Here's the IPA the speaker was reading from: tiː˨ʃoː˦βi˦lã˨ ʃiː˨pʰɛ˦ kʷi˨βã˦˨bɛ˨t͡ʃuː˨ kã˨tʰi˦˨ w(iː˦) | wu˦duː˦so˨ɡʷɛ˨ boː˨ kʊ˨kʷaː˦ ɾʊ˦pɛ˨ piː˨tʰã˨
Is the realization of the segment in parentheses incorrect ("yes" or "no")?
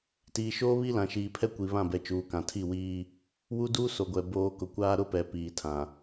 no